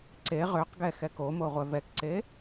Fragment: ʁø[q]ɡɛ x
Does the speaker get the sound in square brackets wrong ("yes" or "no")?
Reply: no